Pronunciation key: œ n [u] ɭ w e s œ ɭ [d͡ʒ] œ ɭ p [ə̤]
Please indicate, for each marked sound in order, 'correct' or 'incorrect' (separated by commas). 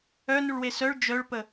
correct, correct, incorrect